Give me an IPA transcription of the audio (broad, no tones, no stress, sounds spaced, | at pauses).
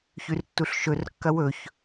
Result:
ç ʉ r tː u ɬ ʃ ɵ r kː ɐ w ɵ ç